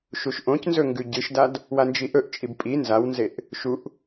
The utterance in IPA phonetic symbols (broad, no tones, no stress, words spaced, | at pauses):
ʃuʃʔõcnzɵ ŋɡʉɟɨʃdad | wand͡ʒiʔɵʔt͡ʃʼib pʼi nzawnzeʔ | ʃuʔ